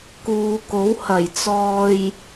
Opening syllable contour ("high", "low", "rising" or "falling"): low